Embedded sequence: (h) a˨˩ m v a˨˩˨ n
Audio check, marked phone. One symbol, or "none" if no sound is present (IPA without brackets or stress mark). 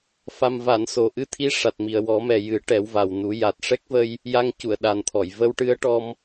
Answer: f